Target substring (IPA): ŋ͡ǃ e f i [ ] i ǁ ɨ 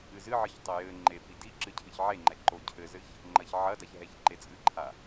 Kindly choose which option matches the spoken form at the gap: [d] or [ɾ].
d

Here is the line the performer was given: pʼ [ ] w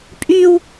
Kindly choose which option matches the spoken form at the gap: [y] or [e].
y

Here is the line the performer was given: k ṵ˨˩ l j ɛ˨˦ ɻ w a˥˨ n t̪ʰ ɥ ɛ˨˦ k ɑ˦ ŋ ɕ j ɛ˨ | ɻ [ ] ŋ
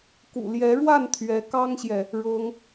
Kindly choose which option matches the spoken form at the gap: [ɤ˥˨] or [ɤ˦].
ɤ˦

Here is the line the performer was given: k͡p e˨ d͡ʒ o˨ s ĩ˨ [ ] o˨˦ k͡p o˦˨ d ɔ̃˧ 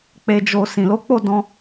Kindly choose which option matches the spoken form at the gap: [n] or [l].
l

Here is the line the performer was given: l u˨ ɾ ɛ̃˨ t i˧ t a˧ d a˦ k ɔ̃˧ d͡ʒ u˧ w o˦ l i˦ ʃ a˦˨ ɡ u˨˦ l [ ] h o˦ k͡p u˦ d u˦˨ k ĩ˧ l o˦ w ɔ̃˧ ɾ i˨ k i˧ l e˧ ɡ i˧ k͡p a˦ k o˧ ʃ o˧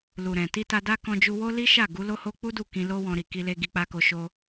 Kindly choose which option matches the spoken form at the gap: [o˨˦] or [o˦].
o˦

